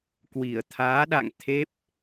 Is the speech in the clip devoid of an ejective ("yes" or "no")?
yes